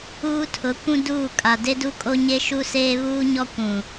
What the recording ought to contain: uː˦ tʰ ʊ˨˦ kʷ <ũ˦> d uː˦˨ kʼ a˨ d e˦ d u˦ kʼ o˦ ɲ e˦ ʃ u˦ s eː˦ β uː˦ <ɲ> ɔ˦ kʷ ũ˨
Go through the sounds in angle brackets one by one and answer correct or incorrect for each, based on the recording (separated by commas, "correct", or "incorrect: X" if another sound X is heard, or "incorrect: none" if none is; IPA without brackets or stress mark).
correct, correct